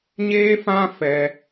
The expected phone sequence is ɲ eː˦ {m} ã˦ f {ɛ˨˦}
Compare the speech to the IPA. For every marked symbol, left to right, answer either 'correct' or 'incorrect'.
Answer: incorrect, incorrect

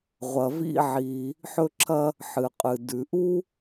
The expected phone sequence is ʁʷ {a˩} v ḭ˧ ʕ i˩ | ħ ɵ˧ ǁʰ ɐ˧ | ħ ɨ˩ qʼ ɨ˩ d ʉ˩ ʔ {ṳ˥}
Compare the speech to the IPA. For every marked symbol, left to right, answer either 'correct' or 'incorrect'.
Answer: incorrect, incorrect

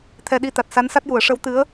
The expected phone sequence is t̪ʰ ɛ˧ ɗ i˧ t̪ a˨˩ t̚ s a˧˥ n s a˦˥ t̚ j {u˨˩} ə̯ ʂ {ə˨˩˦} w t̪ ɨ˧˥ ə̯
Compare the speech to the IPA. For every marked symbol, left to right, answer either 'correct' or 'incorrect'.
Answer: incorrect, incorrect

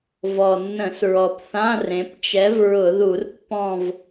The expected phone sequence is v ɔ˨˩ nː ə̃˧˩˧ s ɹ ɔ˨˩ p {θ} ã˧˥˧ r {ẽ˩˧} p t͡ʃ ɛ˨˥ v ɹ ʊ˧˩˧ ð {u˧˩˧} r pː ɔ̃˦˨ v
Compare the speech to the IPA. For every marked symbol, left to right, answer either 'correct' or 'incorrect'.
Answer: correct, correct, correct

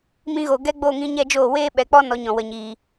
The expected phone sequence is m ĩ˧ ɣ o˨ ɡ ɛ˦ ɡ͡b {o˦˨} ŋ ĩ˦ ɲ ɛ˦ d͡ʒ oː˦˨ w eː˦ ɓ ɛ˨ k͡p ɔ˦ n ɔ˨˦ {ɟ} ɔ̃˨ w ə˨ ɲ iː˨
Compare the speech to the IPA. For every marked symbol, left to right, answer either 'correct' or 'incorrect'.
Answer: correct, incorrect

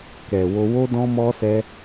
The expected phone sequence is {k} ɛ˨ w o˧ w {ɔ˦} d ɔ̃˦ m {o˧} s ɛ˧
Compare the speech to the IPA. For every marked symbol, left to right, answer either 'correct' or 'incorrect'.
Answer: correct, incorrect, incorrect

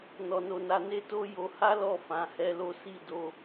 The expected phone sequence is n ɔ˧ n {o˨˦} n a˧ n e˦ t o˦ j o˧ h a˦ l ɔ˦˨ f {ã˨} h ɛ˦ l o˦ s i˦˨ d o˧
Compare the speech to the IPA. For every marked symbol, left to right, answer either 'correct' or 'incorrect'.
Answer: incorrect, incorrect

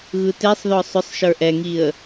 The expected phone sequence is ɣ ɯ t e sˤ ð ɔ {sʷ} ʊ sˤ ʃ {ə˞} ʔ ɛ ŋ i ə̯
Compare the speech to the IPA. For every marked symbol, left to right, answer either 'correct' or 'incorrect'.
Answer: incorrect, correct

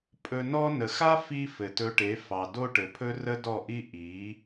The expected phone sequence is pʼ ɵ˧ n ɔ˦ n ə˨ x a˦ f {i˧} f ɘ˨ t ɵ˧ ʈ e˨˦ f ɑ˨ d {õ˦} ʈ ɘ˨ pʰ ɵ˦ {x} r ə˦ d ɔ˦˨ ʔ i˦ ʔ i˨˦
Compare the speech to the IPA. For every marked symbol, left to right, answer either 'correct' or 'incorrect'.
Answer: correct, incorrect, incorrect

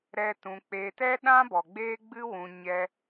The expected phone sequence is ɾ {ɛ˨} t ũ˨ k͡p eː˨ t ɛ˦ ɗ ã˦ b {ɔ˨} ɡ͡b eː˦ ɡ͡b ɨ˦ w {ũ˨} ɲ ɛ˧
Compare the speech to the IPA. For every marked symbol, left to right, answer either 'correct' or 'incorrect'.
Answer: incorrect, correct, correct

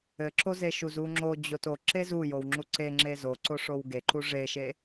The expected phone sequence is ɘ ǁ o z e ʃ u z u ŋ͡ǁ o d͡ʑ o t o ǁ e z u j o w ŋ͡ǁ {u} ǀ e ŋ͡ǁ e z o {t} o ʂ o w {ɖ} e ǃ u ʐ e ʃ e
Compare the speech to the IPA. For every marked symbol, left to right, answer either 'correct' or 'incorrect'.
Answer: correct, incorrect, incorrect

